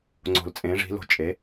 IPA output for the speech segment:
ŋ͡ǀ o̤˨˩ l t͡sʼ ẽ˩˥ ʐ i̤˩˥ l o̤˨˩ t͡ʃʼ e˩˥

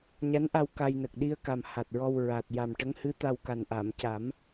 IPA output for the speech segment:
ɲ a˧˥ n ʔ a˧ w k a˧ j n ə˨˩ k̚ ɗ i˧ ə̯ k a˨˩ m h a˨˩ t̚ ɹ ɔ˧ w ɹ a˨˩ t̚ j a˨˩ m ʈ ə˧˥ ŋ h ɨ˧˥ t̪ a˧ w k a˨˩ n ʔ a˨˩˨ m c a˨˩˦ m

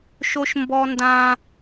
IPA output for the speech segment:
ʃ o˥ ʃ m b ɔ˥ n d ã˥

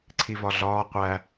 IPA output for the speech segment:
ǀʰ i v ɒ ɮ ɒː qʷ æ

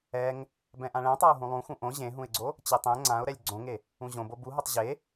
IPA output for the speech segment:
ɛ ŋ | b ɛ̃ ʔ ã ɭ ɛ̃ tˤ a ʊ̯ ɦ ũ lˠ ũ x ũ ʔ õ ʑ ẽ ɦ ũ ɪ̯ ɡ͡ǀ o | t͡ɕ e tˤ ɛ̃ ŋ͡ǀ ã ʊ̯ ɾ ɛ lʲ ɡ͡ǀ õ ŋ e | ũ ʑ õ b o b u ɦ o tˤ ʑ e

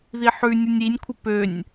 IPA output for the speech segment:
ð i ħ ʉ nʲ ɯ nʲ i nʲ kʷʰ ə p ø nʲ

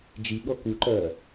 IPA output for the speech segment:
d͡ʒ i ɠ ɔ k u ǃ ɐː

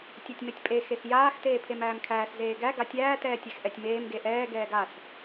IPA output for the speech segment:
tʲ a tʲ m e tʲ pʼ e x e x j aː x t eː pʰ e m æː m kʰ æː s z eː ɡ æ ɡ a tʲ æː t ɛː tʲ ɛ x ʔ ɛ tʲ m eː m ɡ e ʔ ɛː ɡ ɛː ɡ a s

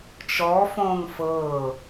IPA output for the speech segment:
t͡ʃ ɔ f õː ŋ f ɤː

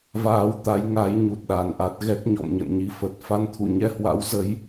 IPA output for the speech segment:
v aː˧ w t̪ a˨˦ j ŋ a˨˦ j ɲ u˨˩ t̚ ɗ a˨˩ n ʔ a˦˥ t̚ ɣ ɛ˦˥ k̚ ɲ ɔ̰˧˨ m ɲ ə̰˧˨ n ɲ i˧ f ə˨˩ t̚ f a˧ n t̪ʰ ṵ˧˨ ɲ ɛ˧ h w a̰˧˥ w z ə˨˦ j

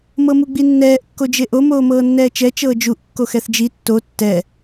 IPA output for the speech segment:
m ɤ m u ɡ͡b i nː ɛː ʔ kː o d͡ʒ e ʔ o m oː m ɤː nː ɛː t͡ʃ ɛ t͡ʃ ɤː d͡ʒ u ʔ kː o x ɛ θ d͡ʒ i tː o tː ɛ

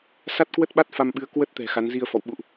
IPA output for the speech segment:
s a˦˥ t̚ k w ə˦˥ t̚ ɓ a˦˥ t̚ f a˧ m ɓ ɨ˨˦ ə̯ k w ə˦˥ t̚ t̪ ɛ̤˨˩ x a˨˦ n z i˧ ə̯ f ɔ̰˧˨ w ɓ ṵ˧˨ ʔ

